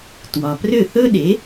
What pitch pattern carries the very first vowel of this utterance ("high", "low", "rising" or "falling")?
low